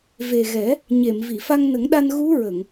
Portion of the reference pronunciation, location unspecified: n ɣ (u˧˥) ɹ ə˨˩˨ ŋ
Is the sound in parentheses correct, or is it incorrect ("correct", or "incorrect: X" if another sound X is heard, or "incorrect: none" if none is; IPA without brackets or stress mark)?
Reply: correct